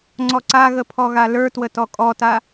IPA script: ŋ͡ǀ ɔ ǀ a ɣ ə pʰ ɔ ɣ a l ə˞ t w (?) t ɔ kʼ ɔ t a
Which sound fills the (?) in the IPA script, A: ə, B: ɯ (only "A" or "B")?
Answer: A